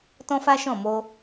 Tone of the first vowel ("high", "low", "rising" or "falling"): high